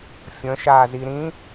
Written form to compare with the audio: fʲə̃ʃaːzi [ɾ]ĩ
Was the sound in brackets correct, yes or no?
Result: yes